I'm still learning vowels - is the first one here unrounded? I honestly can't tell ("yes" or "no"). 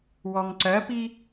no